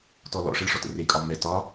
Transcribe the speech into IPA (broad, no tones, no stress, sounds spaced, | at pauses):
t ɔ l ɔ̰ ʂ ə ɭ ʂ ɔ t ə̰ r e kʼ ɒ m ɛ t ɒ